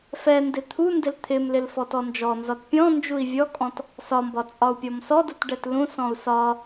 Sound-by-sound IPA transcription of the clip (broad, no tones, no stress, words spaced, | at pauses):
fɛndɪ t̪ʰundɪl t̪ʰɪmlɪl fɔtɔnd͡ʒɔnzɒt pʲɔ̃ nd͡ʒui̯vʲɔkʼɔ̃t | sɒmbɒ t͡sʼɒu̯pʲɔmsɔdut ɖɛtlũsɔ̃u̯ sɒ